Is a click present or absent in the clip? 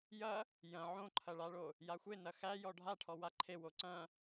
present